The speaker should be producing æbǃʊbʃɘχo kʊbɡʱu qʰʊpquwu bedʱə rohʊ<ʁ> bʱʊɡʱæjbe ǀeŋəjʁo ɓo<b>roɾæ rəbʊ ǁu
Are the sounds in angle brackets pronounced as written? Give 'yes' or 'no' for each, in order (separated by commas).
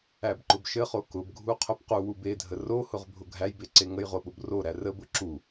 yes, yes